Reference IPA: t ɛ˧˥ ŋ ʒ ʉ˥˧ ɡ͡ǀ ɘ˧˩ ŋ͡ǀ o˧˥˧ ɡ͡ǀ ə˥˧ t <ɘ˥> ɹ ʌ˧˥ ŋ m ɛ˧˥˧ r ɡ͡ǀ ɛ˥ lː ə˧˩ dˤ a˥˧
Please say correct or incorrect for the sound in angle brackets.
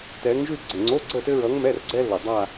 correct